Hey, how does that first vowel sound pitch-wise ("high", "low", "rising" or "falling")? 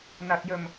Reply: low